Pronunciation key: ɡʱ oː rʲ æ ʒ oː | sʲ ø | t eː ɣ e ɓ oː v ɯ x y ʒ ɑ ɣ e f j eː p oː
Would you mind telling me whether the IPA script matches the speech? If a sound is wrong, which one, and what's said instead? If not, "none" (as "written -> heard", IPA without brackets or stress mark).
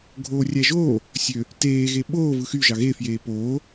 none